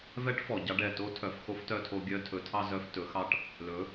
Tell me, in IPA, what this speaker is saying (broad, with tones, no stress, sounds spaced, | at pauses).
v ɛ˧˥ ʈ f ɔ˩ ɟ ɑ˧ ɖ ɛ˩ t o˧˥ tʰ œ˩˧ f x o˧˥ f t œ˧ tʰ o˧ ɡʲ œ˧ tʰ ɵ˩˧ tʰ ɑ˧ z œ˧ f t ɵ˩˧ x ɑ˧ ʈ | l ɵ˩˧